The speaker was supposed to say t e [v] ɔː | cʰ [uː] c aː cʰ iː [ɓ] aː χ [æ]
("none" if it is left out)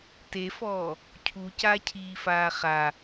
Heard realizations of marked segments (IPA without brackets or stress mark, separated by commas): f, u, f, a